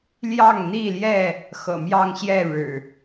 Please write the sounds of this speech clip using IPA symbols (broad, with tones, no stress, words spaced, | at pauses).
ljɑ˥˨ŋn̪i˥˨ljɛ˥˨ | xɤ̰˨˩mjɑ˥˨ŋɕjɛ˥˨ ɻɻ̩˨˩